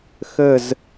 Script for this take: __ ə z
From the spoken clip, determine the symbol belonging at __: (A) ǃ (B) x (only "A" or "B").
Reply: B